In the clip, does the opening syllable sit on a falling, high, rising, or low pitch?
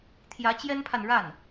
rising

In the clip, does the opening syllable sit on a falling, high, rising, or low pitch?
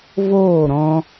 falling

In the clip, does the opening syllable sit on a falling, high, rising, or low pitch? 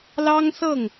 high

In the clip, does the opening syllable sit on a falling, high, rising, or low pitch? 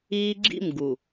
high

